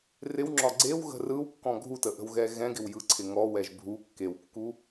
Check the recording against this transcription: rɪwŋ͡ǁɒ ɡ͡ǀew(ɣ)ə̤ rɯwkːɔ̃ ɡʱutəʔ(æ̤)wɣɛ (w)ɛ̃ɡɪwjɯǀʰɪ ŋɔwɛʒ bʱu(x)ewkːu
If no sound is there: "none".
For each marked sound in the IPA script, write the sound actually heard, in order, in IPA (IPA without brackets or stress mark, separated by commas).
ɣ, ə̤, ɣ, kː